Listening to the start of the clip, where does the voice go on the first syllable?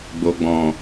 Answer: low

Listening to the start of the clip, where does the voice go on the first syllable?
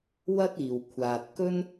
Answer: high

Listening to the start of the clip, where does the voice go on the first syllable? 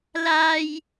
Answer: high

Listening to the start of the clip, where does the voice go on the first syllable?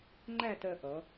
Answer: falling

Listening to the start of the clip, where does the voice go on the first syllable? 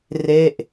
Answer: falling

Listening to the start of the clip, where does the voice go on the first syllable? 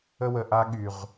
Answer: high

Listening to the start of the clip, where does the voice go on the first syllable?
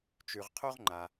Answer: low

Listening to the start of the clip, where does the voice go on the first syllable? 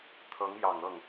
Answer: rising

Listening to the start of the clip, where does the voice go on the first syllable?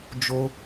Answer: high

